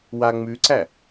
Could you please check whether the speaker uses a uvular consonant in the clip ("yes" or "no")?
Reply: no